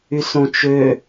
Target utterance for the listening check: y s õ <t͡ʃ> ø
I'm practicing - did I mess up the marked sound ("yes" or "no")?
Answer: no